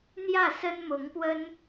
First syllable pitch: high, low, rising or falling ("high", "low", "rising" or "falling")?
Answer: falling